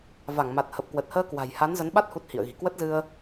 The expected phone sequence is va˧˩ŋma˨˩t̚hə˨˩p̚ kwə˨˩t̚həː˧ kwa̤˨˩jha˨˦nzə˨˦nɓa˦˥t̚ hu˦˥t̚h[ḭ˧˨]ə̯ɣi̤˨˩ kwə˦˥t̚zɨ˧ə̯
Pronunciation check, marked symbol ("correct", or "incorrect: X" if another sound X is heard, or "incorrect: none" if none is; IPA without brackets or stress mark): correct